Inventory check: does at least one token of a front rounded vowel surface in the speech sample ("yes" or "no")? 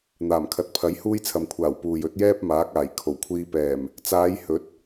no